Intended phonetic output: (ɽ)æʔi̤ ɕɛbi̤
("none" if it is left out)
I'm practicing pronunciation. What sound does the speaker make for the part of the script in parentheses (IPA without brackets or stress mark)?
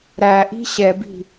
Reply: ɾ